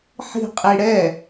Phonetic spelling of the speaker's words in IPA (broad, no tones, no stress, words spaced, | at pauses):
ħi̤ qʼiɽɛ